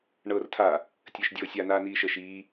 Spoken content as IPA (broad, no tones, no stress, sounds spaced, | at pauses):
ɳ ɤː r tʰ a | tʲ əː ʃ dʲ ɤː sʲ a n aː n iː ʃ ə ʃ iː